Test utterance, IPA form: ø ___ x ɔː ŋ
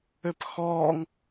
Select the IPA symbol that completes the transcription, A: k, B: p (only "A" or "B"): B